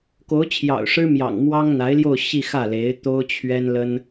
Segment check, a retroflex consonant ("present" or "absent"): present